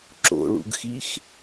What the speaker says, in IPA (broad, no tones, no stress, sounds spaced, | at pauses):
ǁ o̰ ɭ ṵ ɡ x i x